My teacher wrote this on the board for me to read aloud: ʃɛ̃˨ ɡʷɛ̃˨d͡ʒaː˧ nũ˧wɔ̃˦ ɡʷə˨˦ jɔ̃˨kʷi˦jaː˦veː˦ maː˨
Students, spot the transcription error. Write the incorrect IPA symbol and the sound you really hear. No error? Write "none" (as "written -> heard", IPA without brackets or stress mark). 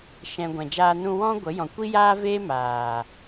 none